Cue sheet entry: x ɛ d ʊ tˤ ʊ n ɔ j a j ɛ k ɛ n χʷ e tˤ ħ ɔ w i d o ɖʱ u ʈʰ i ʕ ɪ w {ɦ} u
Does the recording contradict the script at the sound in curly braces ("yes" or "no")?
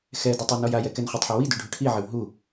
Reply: no